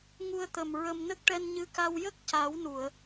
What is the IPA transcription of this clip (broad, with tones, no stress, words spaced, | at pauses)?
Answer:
ŋu˧ə̯t̪ə˨˩m ɹə˧m nə˦˥k̚ʈɛ˧n ɲɨ˧˥ka˧w jə˦˥k̚ca˨˩˦wnu˨˩˨ə̯